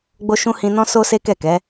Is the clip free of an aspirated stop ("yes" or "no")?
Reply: yes